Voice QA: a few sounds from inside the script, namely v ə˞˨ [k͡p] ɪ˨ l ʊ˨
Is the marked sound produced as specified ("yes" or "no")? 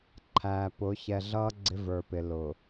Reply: no